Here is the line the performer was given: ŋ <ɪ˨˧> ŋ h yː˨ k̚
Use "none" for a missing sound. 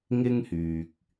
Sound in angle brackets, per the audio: ɪ˥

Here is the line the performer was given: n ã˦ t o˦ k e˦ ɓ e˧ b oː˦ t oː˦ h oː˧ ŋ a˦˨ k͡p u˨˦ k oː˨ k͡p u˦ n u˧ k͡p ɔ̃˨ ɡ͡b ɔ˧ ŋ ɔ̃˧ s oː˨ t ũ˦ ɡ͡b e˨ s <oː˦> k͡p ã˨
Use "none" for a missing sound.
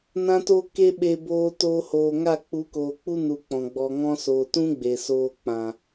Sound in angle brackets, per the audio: oː˧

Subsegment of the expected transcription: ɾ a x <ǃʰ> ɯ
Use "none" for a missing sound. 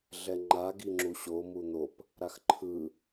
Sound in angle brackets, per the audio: ǃʰ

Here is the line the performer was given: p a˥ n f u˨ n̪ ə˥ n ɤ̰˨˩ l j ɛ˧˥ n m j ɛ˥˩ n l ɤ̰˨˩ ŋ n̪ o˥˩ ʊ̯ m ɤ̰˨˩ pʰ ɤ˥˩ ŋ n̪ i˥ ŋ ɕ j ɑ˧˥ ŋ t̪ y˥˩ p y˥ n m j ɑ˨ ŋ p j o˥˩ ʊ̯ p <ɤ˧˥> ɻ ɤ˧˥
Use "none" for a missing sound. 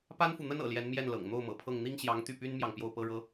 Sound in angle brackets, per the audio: ɤ˥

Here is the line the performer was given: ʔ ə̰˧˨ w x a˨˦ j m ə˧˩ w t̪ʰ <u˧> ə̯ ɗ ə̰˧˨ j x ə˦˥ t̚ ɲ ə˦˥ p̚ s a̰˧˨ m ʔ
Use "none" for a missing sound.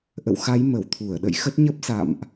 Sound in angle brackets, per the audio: u˧˩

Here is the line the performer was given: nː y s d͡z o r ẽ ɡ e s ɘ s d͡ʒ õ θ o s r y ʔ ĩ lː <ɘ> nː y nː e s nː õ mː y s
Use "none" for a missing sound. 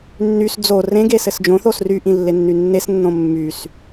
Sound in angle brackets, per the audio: e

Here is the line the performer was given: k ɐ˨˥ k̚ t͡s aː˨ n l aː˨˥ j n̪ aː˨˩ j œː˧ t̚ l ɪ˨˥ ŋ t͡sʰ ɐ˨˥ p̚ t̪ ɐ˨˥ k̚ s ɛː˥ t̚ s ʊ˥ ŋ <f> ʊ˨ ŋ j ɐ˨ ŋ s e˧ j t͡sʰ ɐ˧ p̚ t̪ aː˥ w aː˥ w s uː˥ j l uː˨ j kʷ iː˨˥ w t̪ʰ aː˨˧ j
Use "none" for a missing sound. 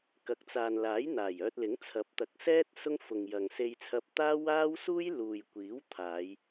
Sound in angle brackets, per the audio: f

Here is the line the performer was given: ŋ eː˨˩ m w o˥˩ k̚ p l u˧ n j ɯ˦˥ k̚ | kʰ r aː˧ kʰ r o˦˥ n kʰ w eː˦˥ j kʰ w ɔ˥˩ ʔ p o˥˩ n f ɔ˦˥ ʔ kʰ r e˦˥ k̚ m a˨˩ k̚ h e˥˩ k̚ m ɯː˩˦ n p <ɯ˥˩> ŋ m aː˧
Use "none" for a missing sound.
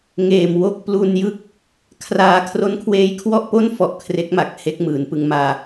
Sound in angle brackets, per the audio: ɯ˧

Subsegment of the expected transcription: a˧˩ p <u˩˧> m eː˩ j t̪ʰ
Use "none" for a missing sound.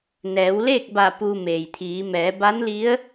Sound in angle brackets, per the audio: u˧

